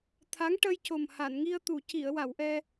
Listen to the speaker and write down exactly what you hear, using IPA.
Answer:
t̪ʰa˧˥ŋʈə˧jco˨˩m ha˨˩˨nŋi˧ə̯t̪u˨˩˨ ci˨˩˨ə̯wa˨˩˨w ʔɛ˧

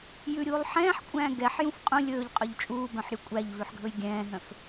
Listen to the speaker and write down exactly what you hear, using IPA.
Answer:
jʉɾʲuːlˠ ħɛ̃ːħkʷʼæ̃ː ɡɛħjũf qʼũ lʲɵːʎqʼœʎ t͡ʃʼuːbœ̃ħɾʲu kʷʼæʎvʉħɡʱɵj ɡʲɛ̃ːɦœ̃f

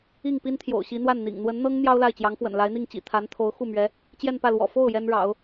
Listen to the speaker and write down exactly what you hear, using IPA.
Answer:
i˥˩ŋ pi˥nt̪ʰjo̰˨˩ʊ̯ɕi˧˥ n̪wa˥˩nn̪ḭ˨˩ŋ n̪wə˧˥nn̪ɤ˥ŋ n̪jɑ˥ʊ̯la˥˩ɪ̯t͡ɕjɑ˧˥ŋfwə̰˨˩n la˧˥ɪ̯n̪i˥˩ŋt͡ɕḭ˨˩ t̪ʰa˧˥nt̪ʰo˧˥ʊ̯ xu˥˩mɥɛ˧˥ | t͡ɕjɛ˥˧npä˥˩lwɔ̰˨˩ fo˥˩ʊ̯ jɛ˥nɻɑ̰˨˩˦ʊ̯

